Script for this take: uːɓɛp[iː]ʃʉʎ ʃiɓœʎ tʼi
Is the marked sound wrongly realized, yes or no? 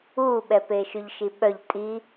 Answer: yes